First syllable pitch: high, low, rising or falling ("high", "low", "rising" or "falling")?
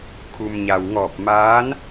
low